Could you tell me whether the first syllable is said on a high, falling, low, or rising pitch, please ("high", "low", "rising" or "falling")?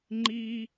high